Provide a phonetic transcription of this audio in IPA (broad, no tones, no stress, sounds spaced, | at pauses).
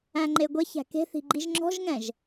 æ̃ ŋ͡ǃ e ɡʷ ɛ ç æ̤ k e̤ θ i̤ ɡ͡ǃ i ʒ ŋ͡ǁ ɔ̤ ʒ ŋ ɛ̃ ʒ